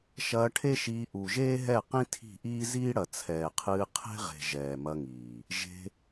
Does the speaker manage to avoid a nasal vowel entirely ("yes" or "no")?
no